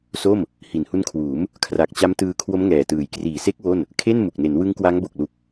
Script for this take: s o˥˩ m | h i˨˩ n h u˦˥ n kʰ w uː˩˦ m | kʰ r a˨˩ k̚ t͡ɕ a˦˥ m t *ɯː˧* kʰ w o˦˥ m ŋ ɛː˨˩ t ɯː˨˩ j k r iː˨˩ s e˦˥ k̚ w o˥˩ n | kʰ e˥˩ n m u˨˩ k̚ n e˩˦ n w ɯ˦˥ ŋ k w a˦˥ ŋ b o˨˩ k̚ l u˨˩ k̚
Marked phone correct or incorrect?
correct